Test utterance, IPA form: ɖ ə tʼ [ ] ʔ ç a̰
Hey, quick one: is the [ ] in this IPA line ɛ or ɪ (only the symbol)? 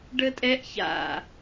ɛ